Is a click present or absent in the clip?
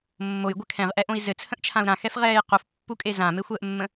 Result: absent